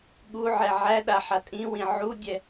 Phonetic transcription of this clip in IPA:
ɠuʕɛ ʕæɗa ħatʼĩwĩ ʕudʲɛ

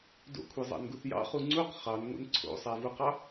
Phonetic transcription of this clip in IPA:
do̰kʷʰezˤɑ̰nɡuθ jɑ̰χu ŋ͡ǀuq χɑnŋʷḛn ǀʰo̰sˤævuqɑ

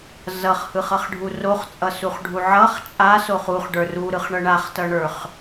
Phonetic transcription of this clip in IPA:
zʌχhɯχʌχɖʱu roχt͡sʼʌsuχɖʱu ʕʌχ t͡ʃʼasoχ uχɖə˞ ruɾɯχɳʌ ɳaχtʌɳə˞χ

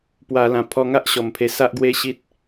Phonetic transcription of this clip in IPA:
pwa˧ lã˨˩pʰɔ˧ŋa˦ʔ ɕɔ˨˩mpʰe˧sa˦ʔɡwe˦ ɕi˦t̚

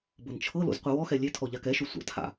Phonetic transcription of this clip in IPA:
bɤnt͡ʃʰɤlo̰z qʷiwɔxɛ lʲetʰɔ ʎakɛʃo sʷa̰tʰa̰

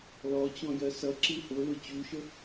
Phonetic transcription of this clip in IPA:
lɔt͡ɕɔ̃jɜ sʌǁi hʊlʊ t͡ɕuʃə

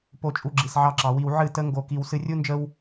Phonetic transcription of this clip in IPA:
po˨t͡ʃʼu˨ ɡ͡ǁi˨sʕɑ˧ǁɑ˨wi˧w ʕɨ˦˨tə˦ ŋɡo˧ki˧w sɨ˧rʲu˦nd͡ʒə˦w

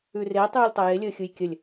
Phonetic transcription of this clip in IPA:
ʉre tˤʉːlʲtˤɐje lʲəːxʲɯjkʲəlʲ

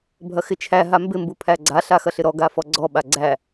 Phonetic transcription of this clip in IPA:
bʱɐxɪt͡ʃʰæ ɦambɪ mbupʰæɡ͡ǀa ɬaxɐɬɪɾɔ ɡafɔɡ͡ǀɔ ɓaɡ͡ǀæ

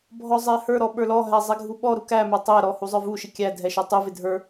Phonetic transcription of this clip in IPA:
bʱɔzˤɛhə˞ɾɔ ɓə˞lɔɦæ zˤɛɡʱuɓɔɾu kæmə˞ tˤɛɾɔ huzˤə˞vuʃɪ kʲæ dʱɛʃə˞tˤuvɪ dʱə˞

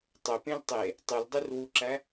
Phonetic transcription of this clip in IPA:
tˤøpẽl tˤe | tˤyldˤyrwuǁæ

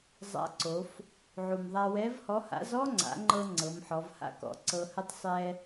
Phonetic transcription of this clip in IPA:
zˤa̰˧˥ǀo˩˧f | ʕu˩mðˤa˧ wɛ˧˥vhɔ˧˥ha̰˧˥z ɔ˥ŋ͡ǀa̰˩˧ŋ͡ǃɤ˧ ŋ͡ǀɤ˩˧mħɔ˩˧vha̰˥kɔ̰˩ ǀɤ˧hə˥tˤ sˤɛ˥

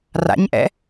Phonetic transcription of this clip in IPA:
ra̰ɲʔɛ̰

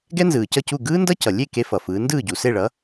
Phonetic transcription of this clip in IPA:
ɡɛ˥nzɯː˩cʌ˥˩cu˥˩ ɡɯː˥ndʌ˥ cʌ˩lʲe˥˩ ke˥fʌ˩fɯː˩˥ ndɯː˥˩ɟu˩se˥˩ɭʌ˩˥

